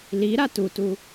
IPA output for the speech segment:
l i ɾ a t u t u

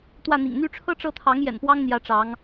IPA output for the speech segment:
t̪ w ä˥˩ n̪ ḭ˨˩ ŋ n̪ y˥˩ ʈ͡ʂʰ ɤ˥ ʈ͡ʂ ɤ˥˩ t̪ʰ ɑ˧˥ ŋ j ɛ̰˨˩ n p w ɑ˥ ŋ n̪ j ä˧˥ ʈ͡ʂ ɑ˧˥ ŋ

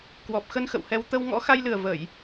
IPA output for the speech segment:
k w ɔ˨˩ p̚ x ə˧ n x ə̰˧˨ w h ɛ˧ w t̪ ə˧ w ŋ ɔ̰˧˥ x a˧ j l ɨ˨˩ ə̯ v ə˧˩˨ j

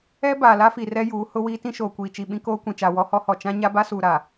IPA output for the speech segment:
ɛ˦ b aː˨ l a˦ f i˨ r ɛ˦ j uː˨˦ h ʊ˦ w iː˦ t ĩ˦ ʃ oː˨ kʷ iː˨ t͡ʃ i˨ ɓ ĩ˦ k oː˦ kʷ ĩ˨ t͡ʃ a˨ w ɔ˦ h ɔ˦ h ɔ˨ t͡ʃ ã˦ ɲ a˦ b a˦ s uː˨ ɾ a˨

